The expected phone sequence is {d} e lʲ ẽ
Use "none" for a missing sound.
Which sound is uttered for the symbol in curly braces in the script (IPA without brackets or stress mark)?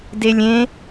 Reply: d